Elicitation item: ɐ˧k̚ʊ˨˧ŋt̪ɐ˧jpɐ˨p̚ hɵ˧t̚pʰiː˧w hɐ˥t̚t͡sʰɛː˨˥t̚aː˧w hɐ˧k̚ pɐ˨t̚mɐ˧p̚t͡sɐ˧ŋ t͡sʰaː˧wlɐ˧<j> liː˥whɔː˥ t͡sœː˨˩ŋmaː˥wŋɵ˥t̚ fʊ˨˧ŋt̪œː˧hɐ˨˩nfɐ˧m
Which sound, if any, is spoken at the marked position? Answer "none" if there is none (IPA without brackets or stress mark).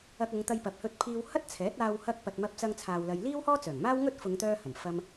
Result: j